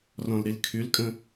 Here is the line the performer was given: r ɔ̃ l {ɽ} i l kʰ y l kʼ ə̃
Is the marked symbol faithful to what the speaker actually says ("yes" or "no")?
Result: no